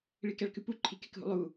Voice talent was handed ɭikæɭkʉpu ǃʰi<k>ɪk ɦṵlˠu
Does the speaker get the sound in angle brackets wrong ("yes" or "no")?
no